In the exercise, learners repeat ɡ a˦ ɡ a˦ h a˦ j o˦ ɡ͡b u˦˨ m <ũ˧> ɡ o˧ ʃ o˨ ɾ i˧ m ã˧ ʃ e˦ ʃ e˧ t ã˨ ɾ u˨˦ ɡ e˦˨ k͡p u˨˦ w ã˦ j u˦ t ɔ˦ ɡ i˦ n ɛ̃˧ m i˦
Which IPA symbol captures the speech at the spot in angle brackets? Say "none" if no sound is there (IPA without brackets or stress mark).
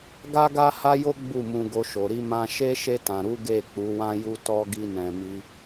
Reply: ũ˧